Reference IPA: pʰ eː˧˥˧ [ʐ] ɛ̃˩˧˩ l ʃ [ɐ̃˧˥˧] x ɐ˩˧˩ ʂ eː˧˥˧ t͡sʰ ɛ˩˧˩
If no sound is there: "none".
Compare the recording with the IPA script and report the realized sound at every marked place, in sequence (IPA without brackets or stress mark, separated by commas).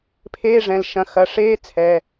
ʐ, ɐ̃˩˧˩